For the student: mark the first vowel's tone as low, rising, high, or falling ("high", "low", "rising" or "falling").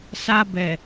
high